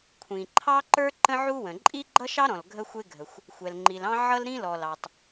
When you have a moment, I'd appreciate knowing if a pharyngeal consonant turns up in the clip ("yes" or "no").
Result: yes